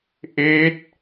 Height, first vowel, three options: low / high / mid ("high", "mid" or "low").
mid